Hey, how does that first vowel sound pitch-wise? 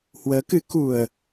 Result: rising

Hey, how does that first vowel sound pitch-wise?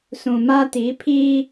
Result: low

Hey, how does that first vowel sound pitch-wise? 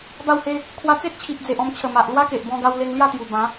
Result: falling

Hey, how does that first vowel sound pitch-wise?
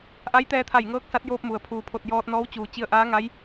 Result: rising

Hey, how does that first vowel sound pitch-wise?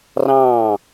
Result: falling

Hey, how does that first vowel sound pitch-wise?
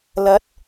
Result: rising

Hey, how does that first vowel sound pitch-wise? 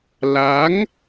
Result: rising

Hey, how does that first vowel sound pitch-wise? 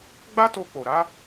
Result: high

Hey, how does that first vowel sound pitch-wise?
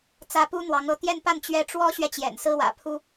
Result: high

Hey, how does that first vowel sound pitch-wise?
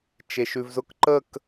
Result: low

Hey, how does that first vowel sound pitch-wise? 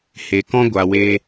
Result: low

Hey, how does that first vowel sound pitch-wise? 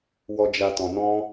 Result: low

